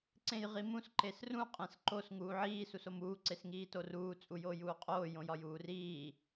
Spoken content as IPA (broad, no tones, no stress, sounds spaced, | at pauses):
ǀ ẽ j ʁ i m ũ s ǃ e s r ũ qʼ ẽ s ǃ o s ŋ uː ʕ iː s u s o m uː ǀ e s ŋ iː t o r uː t͡sʼ u j oː j uː qʼ oː j õ j ɒ j uː r iː